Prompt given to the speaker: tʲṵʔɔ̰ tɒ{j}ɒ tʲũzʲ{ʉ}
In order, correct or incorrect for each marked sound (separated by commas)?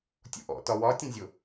incorrect, incorrect